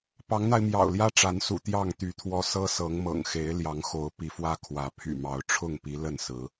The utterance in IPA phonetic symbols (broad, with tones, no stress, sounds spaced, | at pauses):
p ɑ˨˦ ŋ n̪ a˧ ɪ̯ m j ɑ̰˨˩ ʊ̯ l j ä˦ ʈ͡ʂ a˨˦ n s ṵ˨˩ t̪ j ɑ˥˨ ŋ t̪ y˨˦ t̪ʰ w ɔ˦ s ɤ˦ s ɤ˨˦ ŋ m ɤ̰˨˩ ŋ x e˨˦ ɪ̯ l j ɑ˨˦ ŋ x o˨˦ ʊ̯ p i˨˦ f w ä˦ kʰ w ä˨˦ pʰ y̰˨˩ m ɑ˨˦ ʊ̯ ʈ͡ʂʰ ʊ˥˨ ŋ p i˨˦ l ə˥˨ n s ɹ̩˨˦